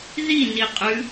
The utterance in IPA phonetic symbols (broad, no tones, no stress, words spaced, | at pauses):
ði niqʼʉ